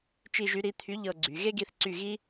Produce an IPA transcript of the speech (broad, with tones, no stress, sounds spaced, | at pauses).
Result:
t͡ʃ i˦˨ ʒ y˨˥ ɾ i˨˥ t̪ʰ y˨˥ ʎ ɤ˦˨ ɡ͡ǀ y˩˧ ɣ e˥ ɡ i˦˨ θ ǀ y˦˨ ɣ i˥